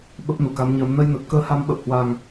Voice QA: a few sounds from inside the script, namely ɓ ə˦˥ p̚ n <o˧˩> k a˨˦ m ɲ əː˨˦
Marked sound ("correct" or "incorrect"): incorrect